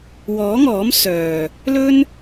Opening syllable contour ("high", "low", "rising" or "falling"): rising